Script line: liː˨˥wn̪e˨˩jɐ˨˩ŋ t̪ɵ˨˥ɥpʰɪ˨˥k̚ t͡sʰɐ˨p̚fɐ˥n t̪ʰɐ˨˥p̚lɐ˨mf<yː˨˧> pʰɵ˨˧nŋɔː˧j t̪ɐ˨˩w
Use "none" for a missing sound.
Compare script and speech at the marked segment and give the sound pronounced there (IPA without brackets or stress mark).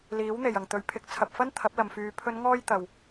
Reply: yː˨˧